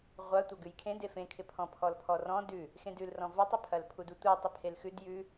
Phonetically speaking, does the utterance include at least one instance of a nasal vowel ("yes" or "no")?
yes